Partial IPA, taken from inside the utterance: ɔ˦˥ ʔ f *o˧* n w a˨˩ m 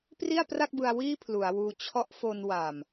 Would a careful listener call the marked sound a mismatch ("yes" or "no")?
no